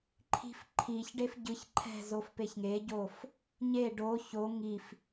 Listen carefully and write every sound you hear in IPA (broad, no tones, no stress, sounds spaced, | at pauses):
ǃʰ i̤ f ǃʰ i ç ɖ e f ɟ ɯ ç ǃʰ ɛ̤ z o f p e ç ŋ e ɟ o f | ɲ e ɖ o ç o ŋ i f